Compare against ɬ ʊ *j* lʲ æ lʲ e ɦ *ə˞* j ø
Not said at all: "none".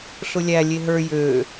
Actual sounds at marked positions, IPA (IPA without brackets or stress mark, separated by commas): none, ə˞